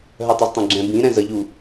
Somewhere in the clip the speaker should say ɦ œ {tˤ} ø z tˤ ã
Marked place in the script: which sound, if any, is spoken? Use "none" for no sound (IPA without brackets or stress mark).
tˤ